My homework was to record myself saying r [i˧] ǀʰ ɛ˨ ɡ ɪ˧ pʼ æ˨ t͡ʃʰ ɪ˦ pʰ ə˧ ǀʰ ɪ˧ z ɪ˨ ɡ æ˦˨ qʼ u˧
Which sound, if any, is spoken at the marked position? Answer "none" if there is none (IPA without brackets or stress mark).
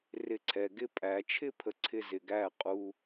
ɪ˧